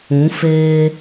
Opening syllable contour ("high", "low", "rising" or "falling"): rising